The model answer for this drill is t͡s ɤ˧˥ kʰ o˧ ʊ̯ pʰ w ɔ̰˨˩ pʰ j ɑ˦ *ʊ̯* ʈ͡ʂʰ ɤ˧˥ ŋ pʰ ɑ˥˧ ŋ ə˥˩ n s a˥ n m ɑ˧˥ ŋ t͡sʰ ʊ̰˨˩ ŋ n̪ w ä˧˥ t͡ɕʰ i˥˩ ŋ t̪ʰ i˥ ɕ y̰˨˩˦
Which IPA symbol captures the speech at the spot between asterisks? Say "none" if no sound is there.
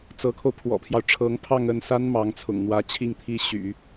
ʊ̯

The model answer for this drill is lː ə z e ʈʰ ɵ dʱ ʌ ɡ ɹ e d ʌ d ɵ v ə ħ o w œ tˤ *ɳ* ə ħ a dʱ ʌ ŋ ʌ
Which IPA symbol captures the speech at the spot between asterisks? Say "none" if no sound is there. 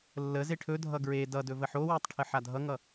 ʈʰ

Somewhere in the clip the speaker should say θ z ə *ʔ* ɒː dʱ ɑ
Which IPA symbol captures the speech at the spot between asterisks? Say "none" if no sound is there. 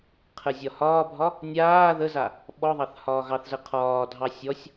qʰ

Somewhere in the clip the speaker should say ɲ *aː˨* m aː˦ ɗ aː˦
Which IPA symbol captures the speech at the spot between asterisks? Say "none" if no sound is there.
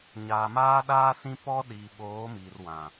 aː˨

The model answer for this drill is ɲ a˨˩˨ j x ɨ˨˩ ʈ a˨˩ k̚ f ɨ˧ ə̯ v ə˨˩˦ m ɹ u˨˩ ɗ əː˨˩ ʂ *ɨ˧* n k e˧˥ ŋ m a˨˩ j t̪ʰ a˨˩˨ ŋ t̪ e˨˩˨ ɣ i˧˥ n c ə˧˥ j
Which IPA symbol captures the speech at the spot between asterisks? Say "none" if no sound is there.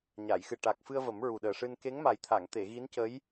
ɨ˧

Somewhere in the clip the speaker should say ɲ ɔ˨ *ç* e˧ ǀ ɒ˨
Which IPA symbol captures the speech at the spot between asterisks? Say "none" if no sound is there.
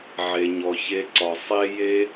ç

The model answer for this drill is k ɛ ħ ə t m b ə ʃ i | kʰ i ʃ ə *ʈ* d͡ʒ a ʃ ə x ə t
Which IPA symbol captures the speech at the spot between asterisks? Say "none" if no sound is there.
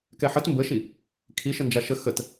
n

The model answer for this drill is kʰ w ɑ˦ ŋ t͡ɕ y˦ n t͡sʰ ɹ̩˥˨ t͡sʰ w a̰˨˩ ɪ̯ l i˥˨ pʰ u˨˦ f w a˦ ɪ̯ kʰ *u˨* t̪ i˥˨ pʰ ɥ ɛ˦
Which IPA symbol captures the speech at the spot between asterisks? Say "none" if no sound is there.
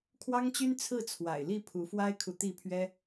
u˨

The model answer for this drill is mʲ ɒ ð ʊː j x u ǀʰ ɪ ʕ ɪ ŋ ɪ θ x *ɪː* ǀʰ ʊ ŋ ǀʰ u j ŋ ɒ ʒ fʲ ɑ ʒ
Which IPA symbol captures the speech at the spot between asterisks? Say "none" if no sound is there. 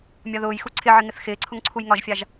ɪː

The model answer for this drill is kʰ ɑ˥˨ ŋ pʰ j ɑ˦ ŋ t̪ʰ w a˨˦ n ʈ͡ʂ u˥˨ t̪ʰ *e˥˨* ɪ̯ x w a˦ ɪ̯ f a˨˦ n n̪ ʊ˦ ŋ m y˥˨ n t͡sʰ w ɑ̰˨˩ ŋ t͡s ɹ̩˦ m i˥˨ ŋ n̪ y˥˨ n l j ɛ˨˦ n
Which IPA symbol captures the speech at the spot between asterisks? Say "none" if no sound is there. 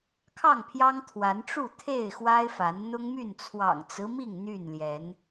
e˥˨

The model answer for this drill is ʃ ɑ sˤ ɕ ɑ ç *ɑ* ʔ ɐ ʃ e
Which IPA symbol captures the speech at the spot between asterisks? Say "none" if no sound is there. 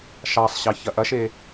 ɐ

